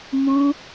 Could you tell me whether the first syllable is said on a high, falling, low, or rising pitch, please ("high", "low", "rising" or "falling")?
high